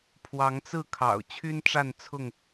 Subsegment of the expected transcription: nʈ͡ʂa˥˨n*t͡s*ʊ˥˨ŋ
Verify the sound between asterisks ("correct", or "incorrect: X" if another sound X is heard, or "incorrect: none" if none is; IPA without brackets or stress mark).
incorrect: t͡sʰ